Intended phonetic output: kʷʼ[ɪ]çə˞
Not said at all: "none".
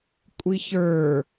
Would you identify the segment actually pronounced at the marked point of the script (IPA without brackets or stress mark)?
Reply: i